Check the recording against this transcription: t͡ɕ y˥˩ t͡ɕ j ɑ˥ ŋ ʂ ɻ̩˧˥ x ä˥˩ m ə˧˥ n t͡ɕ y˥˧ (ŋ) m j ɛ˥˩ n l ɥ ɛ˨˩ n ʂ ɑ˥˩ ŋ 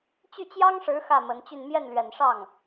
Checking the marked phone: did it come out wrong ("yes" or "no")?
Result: yes